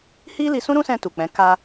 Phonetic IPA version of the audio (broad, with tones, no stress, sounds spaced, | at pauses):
h i˦ l i˧ s ũ˦ ɾ ũ˦ s ɛ̃˧ t u˨ k͡p ɛ̃˨˦ k a˧